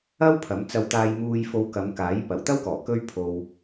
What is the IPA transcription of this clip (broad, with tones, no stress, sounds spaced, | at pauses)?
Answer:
ɐ˥ w pʰ ɐ˨˥ m t͡s ɐ˧ w t̪ aː˧ j m uː˧ j f o˧ w k ɐ˨˧ m k aː˨˥ j p ɐ˨˩ w t̪ ɐ˥ w k ɔː˨˩ k ɵ˥ ɥ pʰ o˧ w